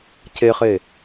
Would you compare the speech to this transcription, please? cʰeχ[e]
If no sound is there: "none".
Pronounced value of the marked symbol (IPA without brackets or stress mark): e